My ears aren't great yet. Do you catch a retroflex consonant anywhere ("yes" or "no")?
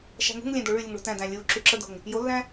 yes